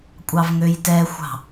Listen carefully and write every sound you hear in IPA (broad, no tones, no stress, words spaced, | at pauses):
kʷʼɑvŋøjtɛxʷɑ̤